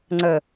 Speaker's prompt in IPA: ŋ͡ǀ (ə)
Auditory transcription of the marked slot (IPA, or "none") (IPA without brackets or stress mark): ə